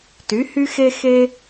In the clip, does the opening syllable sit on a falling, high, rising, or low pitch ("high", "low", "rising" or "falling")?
rising